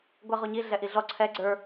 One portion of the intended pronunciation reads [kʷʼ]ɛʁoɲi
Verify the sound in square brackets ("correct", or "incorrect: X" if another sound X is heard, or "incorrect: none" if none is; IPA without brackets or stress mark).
incorrect: ɡʷ